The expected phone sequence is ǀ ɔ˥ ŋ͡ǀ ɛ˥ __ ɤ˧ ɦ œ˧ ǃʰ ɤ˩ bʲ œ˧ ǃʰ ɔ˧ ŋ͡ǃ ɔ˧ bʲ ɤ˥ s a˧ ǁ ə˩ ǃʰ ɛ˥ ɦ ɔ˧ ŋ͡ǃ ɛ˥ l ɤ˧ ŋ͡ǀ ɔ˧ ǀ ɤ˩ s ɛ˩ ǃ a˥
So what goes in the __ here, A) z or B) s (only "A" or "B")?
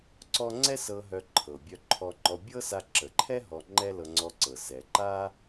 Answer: B